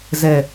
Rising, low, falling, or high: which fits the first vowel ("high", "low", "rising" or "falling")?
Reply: low